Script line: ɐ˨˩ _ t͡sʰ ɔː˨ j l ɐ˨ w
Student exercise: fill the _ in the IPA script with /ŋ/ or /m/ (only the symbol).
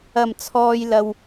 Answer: m